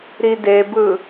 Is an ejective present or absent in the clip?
absent